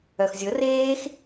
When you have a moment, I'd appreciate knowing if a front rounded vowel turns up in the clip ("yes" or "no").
yes